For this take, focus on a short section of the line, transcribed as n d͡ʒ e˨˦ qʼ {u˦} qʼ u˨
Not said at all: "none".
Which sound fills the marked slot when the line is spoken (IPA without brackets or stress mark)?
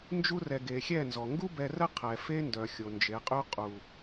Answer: y˦